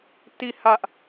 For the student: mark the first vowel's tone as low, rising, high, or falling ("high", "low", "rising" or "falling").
falling